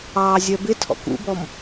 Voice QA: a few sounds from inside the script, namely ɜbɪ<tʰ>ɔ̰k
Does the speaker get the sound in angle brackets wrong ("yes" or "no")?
no